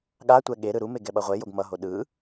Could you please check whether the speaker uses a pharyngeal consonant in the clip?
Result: no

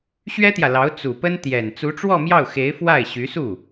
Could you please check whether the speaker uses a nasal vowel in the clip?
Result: no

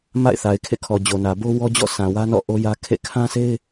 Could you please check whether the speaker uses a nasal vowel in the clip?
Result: yes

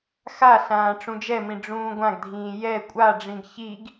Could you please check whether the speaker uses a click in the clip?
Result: no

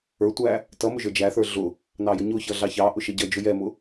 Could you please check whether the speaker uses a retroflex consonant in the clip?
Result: no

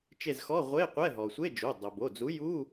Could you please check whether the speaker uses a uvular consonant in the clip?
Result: yes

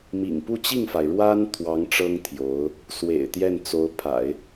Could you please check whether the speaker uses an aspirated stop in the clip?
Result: yes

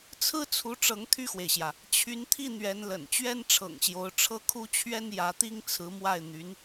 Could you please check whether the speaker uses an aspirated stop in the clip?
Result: yes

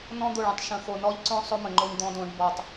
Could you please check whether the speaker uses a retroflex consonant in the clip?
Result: yes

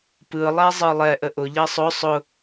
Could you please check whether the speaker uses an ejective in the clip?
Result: no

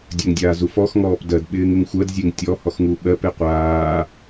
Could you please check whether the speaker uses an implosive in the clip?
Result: yes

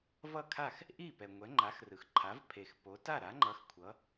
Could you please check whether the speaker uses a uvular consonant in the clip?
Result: no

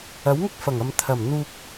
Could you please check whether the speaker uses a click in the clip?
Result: no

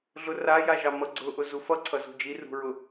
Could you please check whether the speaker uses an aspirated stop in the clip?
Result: yes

